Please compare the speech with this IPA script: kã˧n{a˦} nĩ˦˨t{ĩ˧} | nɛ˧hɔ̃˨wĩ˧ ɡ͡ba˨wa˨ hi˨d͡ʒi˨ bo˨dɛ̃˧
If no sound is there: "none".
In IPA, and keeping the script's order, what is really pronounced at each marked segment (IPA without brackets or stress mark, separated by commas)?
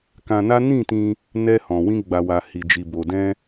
a˦, ĩ˧